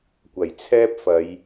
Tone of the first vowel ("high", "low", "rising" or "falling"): low